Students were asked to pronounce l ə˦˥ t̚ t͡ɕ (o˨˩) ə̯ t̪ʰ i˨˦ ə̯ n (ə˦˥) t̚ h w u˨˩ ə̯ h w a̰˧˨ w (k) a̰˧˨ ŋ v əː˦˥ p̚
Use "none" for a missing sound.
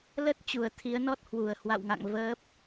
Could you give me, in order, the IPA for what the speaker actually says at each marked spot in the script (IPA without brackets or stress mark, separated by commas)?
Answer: u˨˩, ɔ˦˥, ŋ